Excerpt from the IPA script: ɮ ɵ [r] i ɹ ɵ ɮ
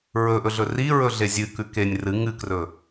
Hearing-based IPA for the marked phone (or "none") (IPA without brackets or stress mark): r